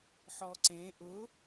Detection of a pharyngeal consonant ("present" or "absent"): present